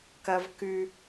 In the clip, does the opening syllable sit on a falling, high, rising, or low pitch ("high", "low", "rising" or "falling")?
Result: high